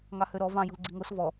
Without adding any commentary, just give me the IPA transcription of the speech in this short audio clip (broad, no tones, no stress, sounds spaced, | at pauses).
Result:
ŋ ɑ h ø ɾ ɔ v ɑ̃ j ṳ l ɡ͡ǀ i ŋ o s v ɔ